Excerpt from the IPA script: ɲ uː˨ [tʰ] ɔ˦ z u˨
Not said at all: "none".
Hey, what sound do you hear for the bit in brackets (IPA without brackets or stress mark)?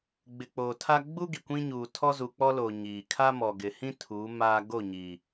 tʰ